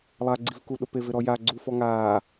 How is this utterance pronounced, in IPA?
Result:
lˠ a ɡ͡ǀ i v k u ɗ ʊ p e v ɪ ɾ ɔ j a ɡ͡ǀ u f ɔ ŋ aː

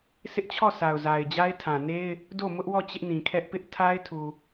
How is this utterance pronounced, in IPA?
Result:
sʰ ɪ˦ ʔ t͡ɕʰ ɔ˦˨ s a˨ ʊ̯ z a˨ ɪ̯ d͡ʑ a˦ ɪ̯ tʰ ã˨ n e˦ ɪ̯ | d o˦˨ m ʊ˦ ʔ w ɔ˦˨ t͡ɕ ɪ˦ ʔ n ĩ˨ kʰ ɛ˦ ʔ p ɪ˦ ʔ tʰ a˦ ɪ̯ tʰ u˨

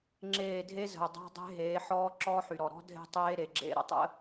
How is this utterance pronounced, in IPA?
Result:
ŋ͡ǁ eː˦˨ dʱ e˦ z ə̤˨ ʊ̯ dˤ a̤˦ dˤ e̤˦ ɦ eː˨˦ ħ ɔː˦ ǁ ɔː˦ ħ y˨ ɾ ɔ˨ ɾ ɔ̤˦ dʱ e̤˦ tˤ eː˦ ɾ e˨ ɡ͡ǁ ḛ˦ ɾ ə̰˦˨ tˤ ə̰˦

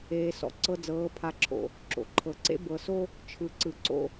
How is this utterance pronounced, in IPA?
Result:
eː˨ s ɔ̰˨ ǀ ɤ˦ d͡z ɤː˨˦ pʰ a˨ ǁʰ o̰˨ | ǁ o̰˨ ǃʰ ɤ˨ ǀ ḛ˦ b ɤ˨ s o˦ | t͡ʃʰ ɯ˨ ǀ ɯ˨ ǀ o̰˦

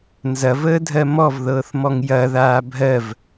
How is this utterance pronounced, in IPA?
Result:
n z ɐ v əː dʱ ɜ m ɔ v ð ɤː θ m ɔ ŋ j ɐ ð aː bʱ ɜ v

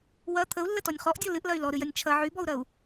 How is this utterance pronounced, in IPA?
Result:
w ɐ t̪ʰ ə u̯ lː ə t ɔ nʲ χ ɔ ʔ dʲ ɔ l ɨ ʔ l ɐ y̯ l ɔ ɾ ɨ j ɐ nʲ t͡ʃʰ ɐ ʕ y b ɔ u̯ ɾ ɐ u̯

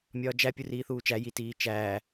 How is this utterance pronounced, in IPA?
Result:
mʲ ɒː d͡ʒ æ pʲ u r iː θ uː t͡ʃ æ j i t iː t͡ʃ æː

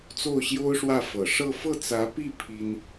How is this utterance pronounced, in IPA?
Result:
t͡s o˥˩ ʊ̯ ɕ j o˥ ʊ̯ ʂ w ä˥˩ f ɤ˨˩ ʂ ɤ˥˧ f ɤ˥˩ t͡s ä˧˥ p i˥˩ pʰ i˥ n

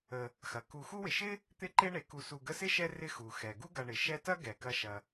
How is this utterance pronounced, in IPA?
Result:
ə˨ | x ɐ˩ k u˨ x u˦ w ɪ˨ ʃ ɪ˥ | t̪ ɪ˦ ǃ e˦ ɳ e˩ k u˨ s u˨ ɡ ə˦ s ɪ˥ ʃ ɛ˦ r ɪ˥ x u˩ x ɛ˩ ɡ u˥ ɡ ɐ˨ ɳ ɪ˩ ʃ ɛ˦ t ɐ˥ ɡ ɛ˩ k ɐ˨ ʃ ɐ˩

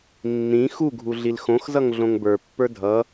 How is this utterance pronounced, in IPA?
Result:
nː ĩ x u ɡʱ u ɮ i l x õ x z ʌ ŋ ɮ õ ŋ b ə˞ pː ə˞ dʱ ʌ

